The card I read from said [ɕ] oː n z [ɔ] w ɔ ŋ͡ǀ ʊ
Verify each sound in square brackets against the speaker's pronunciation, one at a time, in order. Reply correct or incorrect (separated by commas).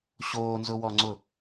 correct, incorrect